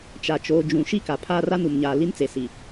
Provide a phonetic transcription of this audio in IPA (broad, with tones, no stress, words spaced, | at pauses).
t͡ʃa˨t͡ʃoː˨d͡ʒũ˨ ʃi˦ka˨pʰaː˦ ra˦nu˨mɲaː˨ li˦nt͡se˨si˨